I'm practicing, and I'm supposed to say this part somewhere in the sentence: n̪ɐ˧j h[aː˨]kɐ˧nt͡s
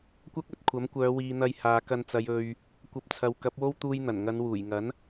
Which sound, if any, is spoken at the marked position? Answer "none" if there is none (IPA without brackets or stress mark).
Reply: aː˨